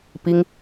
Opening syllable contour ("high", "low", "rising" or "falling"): high